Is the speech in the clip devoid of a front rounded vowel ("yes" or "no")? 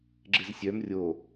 no